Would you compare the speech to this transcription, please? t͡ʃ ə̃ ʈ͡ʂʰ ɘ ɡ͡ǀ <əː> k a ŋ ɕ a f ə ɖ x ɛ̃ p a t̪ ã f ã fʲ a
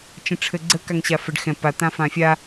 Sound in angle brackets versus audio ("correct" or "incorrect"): incorrect